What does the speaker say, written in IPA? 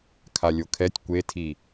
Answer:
kʰalʲokʰɛtʲ kʷetʰi

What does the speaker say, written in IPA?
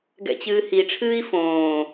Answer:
ɡɛ̰t͡ɕɨːhiʈ͡ʂʰɨːi̯ fõː

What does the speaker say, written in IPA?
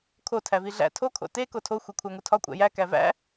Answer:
kʰo tʰæviɮæ̰ tʰo kʰo̰te kotʰo xʷekʷʰæŋutʰɒ kʷʼæ̰jæ kævæ̰

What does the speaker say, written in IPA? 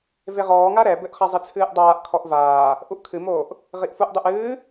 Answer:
veʁɔː ŋaɾɛbɘʔ χazˤɨt͡sʰɨːʔdˤaːʔ kʰɔʔvaː | ʔuʔkʰɨmoːʔ | ʁiʔfuʔ dˤuʔɨː

